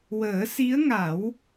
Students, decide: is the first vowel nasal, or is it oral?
oral